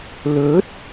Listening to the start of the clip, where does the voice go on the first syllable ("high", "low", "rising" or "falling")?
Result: rising